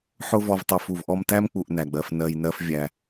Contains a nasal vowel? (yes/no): no